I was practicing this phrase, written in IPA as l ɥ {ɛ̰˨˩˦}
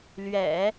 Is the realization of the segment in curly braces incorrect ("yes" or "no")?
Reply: no